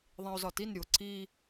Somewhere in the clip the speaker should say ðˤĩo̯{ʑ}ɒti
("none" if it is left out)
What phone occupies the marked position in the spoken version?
z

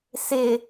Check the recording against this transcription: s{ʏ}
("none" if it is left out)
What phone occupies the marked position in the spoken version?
ɪ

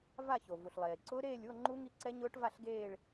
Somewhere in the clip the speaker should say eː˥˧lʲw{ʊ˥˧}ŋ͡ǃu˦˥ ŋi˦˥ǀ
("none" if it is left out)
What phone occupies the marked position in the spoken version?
ʊ˥˧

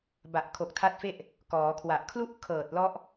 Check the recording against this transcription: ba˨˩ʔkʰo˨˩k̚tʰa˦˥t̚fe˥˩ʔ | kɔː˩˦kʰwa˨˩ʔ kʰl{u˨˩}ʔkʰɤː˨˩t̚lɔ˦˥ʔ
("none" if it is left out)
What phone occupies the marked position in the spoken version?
u˥˩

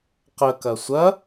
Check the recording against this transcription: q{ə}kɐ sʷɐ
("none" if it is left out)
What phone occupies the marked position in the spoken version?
ə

